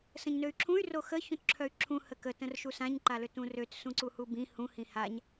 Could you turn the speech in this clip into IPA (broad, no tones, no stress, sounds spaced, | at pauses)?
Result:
s ə̃ ɲ n ø y̯ ǁʰ ũ y̯ r o x ə ç ũ t ǁʰ œ y̯ ǁʰ ũ h ə k ə t ə̃ r ʃ u s ã ɲ ǃ a l ø t ũ r ø t s ũ ǀ u h u b ĩ h ũ h ĩ h a ɲ